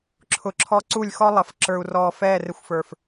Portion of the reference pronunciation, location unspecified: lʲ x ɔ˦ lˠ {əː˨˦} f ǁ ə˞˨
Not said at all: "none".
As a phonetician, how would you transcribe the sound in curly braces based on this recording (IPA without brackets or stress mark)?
ə˨˦